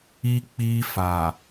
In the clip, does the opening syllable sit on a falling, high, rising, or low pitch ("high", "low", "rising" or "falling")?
high